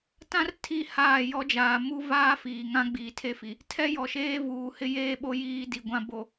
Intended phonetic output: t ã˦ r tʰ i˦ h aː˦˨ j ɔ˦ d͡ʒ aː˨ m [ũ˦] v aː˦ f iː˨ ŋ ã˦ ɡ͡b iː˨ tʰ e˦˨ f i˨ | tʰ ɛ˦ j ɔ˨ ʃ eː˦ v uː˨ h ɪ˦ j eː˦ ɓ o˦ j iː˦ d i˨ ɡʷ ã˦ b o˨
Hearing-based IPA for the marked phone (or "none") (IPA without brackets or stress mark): u˦